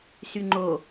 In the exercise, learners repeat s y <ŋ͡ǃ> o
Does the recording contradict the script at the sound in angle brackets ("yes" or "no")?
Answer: no